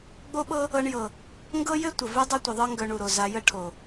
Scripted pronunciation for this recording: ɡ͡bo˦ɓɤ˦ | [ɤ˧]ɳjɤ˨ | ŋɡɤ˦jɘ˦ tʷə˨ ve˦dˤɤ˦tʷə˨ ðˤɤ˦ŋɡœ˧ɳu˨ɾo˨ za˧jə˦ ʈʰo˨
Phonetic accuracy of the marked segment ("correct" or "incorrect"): correct